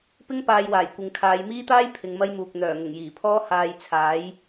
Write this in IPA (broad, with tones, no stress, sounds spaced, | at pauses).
p ɪ˥ ŋ p aː˧ j w aː˨˩ j kʷ ɪ˨˧ ŋ kʰ aː˨˧ j m iː˥ t̪ aː˥ j pʰ ɪ˨˧ ŋ m ɐ˥ j m uː˨ k̚ n̪ œː˨˩ ŋ ʊ˨˩ ŋ j iː˨˩ pʰ ɔː˥ h aː˧ j t͡sʰ aː˨˥ j